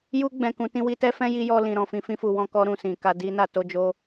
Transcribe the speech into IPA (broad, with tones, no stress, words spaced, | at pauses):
ju˧ɡ͡bɛ̃˨ kũ˨˦tĩ˦wi˦ tɛ˦fɛ̃˦ji˧ jɔ˧lĩ˨ ɾɔ̃˨fĩ˧ fĩ˧fu˨wɔ̃˧kɔ˧ ɾũ˨sĩ˨ka˧ di˧na˨to˧ d͡ʒo˦